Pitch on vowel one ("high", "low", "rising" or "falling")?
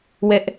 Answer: high